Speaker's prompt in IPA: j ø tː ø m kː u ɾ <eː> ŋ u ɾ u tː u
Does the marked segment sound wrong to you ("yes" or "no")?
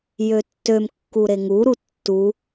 yes